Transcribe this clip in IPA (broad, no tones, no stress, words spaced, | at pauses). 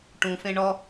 ʈũfẽ ɳɔ